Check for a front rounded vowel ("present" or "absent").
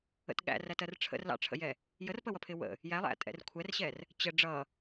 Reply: absent